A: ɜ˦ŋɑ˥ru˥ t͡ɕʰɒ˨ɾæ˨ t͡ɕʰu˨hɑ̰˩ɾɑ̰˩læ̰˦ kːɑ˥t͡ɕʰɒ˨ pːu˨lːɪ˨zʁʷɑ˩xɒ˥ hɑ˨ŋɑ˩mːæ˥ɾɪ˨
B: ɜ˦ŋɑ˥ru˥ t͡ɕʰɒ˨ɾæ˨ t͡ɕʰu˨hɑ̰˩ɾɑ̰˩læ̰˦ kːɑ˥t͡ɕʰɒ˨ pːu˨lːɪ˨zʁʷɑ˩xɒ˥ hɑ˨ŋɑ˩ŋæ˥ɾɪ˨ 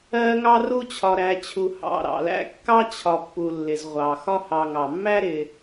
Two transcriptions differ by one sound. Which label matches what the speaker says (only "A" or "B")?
A